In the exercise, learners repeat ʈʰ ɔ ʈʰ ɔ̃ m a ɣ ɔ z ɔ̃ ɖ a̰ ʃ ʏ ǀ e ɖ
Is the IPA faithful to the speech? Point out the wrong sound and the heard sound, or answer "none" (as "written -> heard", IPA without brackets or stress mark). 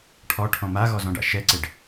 ʏ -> ɛ